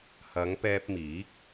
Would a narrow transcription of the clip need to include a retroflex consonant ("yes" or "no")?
no